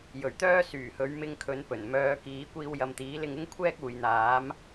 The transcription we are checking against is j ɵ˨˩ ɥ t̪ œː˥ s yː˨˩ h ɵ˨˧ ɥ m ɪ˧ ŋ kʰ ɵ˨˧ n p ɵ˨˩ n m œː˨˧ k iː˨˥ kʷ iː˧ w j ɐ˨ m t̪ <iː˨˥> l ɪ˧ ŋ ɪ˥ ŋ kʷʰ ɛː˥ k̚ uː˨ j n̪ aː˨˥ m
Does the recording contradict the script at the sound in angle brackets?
no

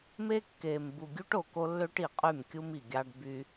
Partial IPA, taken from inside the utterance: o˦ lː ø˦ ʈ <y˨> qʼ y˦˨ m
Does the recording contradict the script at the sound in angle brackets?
yes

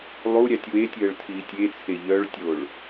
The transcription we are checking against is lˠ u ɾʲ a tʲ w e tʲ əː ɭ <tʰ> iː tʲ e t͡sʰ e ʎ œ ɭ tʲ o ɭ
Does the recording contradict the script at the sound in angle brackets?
no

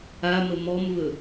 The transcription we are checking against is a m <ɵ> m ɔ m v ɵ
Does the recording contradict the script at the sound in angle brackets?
yes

